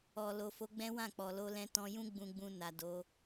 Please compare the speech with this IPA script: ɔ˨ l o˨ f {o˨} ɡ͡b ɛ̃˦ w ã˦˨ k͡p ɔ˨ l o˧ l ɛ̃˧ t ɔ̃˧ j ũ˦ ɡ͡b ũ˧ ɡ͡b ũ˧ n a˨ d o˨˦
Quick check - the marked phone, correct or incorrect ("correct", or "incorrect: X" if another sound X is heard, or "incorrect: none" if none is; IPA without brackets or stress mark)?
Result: incorrect: o˨˦